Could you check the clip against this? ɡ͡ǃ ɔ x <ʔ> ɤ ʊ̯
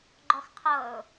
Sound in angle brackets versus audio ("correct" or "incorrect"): incorrect